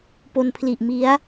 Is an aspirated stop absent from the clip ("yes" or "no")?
no